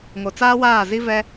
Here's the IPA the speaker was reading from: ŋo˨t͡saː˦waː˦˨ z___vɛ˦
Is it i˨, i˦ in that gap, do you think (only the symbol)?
i˦